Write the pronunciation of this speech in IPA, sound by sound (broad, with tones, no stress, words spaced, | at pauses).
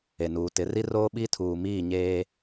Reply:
e˨nuː˨tɪ˨˦ ri˦roː˦ɓi˦tʰuː˨ miː˦˨ɲeː˦